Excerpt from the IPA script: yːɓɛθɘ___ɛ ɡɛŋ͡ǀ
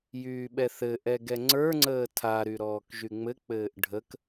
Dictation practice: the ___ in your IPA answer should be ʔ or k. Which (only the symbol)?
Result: ʔ